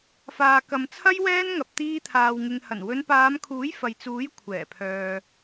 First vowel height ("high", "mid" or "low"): low